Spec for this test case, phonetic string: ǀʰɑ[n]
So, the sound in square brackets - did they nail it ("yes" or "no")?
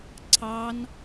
yes